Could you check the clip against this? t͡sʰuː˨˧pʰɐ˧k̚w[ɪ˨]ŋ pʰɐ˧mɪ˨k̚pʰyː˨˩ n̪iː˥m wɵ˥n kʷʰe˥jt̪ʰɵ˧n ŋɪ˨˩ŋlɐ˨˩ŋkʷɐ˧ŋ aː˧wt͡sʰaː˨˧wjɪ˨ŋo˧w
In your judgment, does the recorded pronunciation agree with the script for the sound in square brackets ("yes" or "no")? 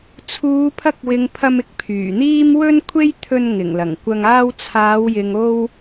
yes